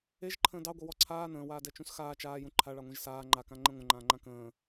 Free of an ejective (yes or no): yes